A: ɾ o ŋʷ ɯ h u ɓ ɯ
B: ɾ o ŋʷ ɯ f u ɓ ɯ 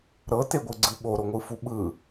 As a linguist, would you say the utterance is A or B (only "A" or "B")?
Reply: B